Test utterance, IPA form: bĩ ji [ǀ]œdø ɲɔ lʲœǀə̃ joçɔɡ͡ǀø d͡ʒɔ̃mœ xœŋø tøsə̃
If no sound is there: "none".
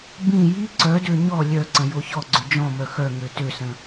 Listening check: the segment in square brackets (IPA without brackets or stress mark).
ǀ